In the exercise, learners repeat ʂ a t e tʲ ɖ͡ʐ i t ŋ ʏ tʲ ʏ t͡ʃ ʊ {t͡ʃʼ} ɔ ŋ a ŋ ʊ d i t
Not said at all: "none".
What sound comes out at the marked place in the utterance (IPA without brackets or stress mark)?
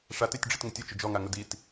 d͡ʒ